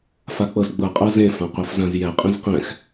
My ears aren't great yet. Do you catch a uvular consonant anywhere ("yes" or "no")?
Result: yes